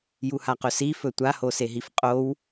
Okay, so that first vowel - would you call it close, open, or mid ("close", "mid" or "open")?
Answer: close